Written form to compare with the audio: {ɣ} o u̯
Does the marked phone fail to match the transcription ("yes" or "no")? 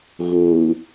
no